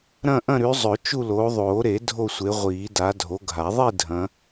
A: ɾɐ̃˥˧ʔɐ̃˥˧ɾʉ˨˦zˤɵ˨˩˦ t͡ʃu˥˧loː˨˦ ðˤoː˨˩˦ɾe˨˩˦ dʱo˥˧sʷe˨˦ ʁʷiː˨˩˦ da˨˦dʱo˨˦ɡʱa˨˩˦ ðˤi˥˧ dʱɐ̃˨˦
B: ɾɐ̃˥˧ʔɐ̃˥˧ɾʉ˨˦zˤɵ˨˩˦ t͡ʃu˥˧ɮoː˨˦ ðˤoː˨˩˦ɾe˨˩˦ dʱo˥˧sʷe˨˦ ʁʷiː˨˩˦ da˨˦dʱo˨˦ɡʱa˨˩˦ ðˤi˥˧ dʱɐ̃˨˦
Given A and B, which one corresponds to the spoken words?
A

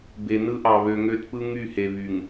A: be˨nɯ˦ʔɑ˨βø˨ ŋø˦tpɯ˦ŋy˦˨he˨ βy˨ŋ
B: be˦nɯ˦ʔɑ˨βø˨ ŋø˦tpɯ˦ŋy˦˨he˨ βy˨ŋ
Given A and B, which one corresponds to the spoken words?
A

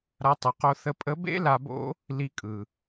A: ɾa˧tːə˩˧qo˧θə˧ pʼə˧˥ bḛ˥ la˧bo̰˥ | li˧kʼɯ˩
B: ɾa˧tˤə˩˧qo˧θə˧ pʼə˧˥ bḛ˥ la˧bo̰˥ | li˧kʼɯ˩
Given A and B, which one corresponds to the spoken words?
B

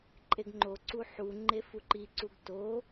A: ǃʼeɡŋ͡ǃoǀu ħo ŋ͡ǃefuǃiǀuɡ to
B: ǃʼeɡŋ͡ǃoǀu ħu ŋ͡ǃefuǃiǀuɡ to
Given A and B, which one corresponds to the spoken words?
B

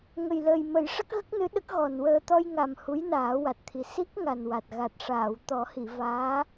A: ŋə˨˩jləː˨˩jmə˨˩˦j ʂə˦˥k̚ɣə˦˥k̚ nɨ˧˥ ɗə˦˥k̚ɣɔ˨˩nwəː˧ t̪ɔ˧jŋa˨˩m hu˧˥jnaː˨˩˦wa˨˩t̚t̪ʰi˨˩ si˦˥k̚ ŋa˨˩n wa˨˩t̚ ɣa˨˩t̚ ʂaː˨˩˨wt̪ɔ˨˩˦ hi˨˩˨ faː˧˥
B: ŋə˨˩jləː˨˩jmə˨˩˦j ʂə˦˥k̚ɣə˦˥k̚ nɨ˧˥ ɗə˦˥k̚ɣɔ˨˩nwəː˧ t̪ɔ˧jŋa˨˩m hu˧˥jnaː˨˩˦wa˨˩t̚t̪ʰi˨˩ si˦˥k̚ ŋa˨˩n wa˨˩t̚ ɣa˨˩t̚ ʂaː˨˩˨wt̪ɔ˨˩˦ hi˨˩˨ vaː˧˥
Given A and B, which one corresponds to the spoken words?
B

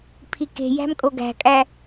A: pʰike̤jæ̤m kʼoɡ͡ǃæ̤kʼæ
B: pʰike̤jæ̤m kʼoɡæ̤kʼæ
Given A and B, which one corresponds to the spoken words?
B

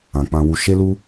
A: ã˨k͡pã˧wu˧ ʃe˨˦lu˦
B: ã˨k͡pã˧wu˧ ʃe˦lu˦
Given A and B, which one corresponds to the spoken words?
B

